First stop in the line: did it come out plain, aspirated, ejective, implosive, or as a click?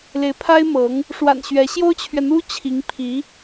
aspirated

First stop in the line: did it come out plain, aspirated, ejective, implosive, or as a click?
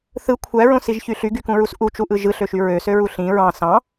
aspirated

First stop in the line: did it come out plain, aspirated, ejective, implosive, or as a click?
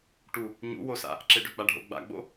plain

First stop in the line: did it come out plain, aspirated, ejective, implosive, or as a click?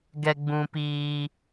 plain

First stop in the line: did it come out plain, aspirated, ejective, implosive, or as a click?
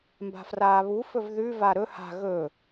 plain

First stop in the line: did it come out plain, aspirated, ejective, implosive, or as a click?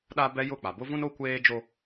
implosive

